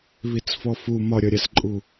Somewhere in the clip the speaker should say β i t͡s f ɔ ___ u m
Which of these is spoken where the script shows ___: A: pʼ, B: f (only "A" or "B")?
B